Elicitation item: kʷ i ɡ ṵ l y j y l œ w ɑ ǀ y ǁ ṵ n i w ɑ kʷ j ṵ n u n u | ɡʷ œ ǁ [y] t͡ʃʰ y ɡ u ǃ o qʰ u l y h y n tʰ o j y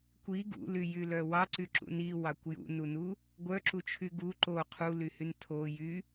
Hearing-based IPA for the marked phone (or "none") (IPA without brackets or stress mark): u